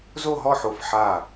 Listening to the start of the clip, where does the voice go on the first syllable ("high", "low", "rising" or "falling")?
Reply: falling